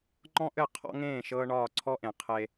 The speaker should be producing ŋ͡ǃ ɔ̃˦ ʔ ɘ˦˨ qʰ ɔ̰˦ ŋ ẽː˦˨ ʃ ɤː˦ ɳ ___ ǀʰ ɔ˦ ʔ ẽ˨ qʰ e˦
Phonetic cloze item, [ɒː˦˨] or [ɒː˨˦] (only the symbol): ɒː˦˨